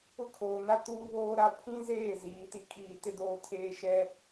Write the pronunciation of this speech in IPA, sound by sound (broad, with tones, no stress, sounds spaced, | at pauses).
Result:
ʊ˦ kʰ oː˨ n a˦ t uː˦ β oː˦ ɾ a˦ pʰ ĩ˦ z eː˦˨ z iː˨˦ t i˦ kʼ iː˦˨ t ɪ˦ d oː˦ tʰ eː˦ ʃ ɛ˦